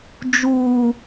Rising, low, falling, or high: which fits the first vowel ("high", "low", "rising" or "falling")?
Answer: high